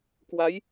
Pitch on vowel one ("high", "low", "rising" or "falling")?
rising